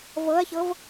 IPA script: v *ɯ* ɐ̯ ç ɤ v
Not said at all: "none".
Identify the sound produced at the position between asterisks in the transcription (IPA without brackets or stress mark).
ɤ